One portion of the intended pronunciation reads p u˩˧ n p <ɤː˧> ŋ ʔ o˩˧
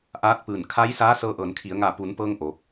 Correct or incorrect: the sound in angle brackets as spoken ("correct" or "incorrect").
correct